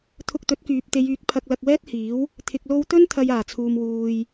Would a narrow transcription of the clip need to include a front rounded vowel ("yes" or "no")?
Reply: yes